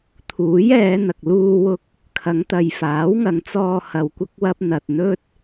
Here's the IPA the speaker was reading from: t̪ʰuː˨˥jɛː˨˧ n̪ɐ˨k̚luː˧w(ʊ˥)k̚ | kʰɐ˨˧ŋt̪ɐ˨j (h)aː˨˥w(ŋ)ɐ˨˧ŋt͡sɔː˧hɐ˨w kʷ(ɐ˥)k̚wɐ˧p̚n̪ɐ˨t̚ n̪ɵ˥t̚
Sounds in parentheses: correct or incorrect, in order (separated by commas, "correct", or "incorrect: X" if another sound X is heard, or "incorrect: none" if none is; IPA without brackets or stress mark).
incorrect: ʊ˧, incorrect: f, correct, incorrect: ɐ˧